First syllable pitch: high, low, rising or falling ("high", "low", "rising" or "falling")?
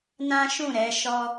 high